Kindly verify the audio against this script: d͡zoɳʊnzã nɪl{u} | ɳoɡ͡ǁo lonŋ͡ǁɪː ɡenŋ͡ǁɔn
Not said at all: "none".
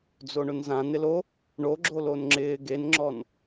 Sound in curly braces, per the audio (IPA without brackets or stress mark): o